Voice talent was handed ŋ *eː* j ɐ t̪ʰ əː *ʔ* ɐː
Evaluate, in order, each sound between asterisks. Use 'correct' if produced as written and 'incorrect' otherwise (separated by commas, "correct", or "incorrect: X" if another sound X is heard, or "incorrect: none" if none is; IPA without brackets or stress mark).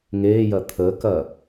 correct, incorrect: k